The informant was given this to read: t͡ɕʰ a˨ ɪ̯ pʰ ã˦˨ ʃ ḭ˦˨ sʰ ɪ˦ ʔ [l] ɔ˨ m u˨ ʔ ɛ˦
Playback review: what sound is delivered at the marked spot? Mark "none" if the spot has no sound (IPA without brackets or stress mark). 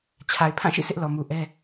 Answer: l